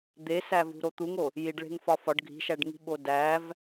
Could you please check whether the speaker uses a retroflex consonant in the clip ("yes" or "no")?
yes